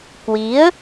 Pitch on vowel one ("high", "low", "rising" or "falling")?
rising